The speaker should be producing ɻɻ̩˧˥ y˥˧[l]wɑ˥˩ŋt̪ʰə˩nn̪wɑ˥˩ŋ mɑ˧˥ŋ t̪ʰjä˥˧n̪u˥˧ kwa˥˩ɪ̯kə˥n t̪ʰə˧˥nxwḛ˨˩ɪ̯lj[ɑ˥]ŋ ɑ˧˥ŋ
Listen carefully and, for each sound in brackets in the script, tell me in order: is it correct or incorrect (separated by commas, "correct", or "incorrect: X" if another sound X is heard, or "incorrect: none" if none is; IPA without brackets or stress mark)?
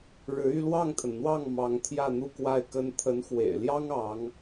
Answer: correct, correct